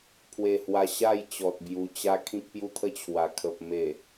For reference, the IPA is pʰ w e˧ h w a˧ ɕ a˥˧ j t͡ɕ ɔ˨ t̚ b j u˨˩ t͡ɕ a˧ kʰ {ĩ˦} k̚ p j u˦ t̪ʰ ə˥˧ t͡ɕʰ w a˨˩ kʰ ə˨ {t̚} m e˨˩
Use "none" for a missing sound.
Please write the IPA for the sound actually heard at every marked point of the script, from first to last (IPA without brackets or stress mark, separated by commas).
ĩ˦, p̚